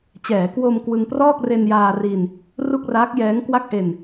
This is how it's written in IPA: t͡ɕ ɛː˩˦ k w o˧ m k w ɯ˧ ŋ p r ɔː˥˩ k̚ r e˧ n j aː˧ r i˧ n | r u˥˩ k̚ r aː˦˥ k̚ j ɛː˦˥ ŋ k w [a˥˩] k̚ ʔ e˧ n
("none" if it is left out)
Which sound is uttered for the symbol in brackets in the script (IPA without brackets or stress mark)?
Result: a˥˩